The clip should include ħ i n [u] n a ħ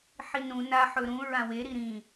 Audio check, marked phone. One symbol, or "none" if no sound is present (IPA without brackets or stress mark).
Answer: ũ